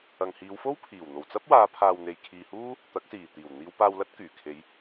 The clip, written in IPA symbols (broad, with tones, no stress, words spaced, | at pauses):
ɐ˨ŋhiː˨˧wfo˥wpʰiː˨˩w n̪o˨˩wt͡sɐ˥p̚waː˨˧pʰaː˨w n̪e˨jkʰiː˨huː˥ | t̪ɐ˨˥k̚siː˨˩t̪iː˨˩w n̪iː˨˧wpaː˧wlɐ˥t̚ kyː˨˩kʰe˨˧j